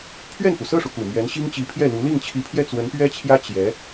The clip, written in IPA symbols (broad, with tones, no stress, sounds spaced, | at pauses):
pʰ ɥ ɛ˥˩ n f u˩ s ɤ˥˩ ʂ u˩ k u˨˩ m ɥ ɛ˧˥ n ɕ i˥ ŋ t͡ɕ i˧˥ pʰ j ɛ˥˩ l u˧˥ l i˥˩ ŋ t͡ɕʰ i˧˥ pʰ j ɛ˥˩ t͡s w ə˧˥ n p ɥ ɛ˥ t͡ɕʰ j ä˥ t͡ɕ j ɛ˧˥